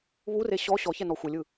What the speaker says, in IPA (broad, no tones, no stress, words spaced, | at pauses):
βure ɕɔ ɕɔçɛnɔ xʷɛlʲɯ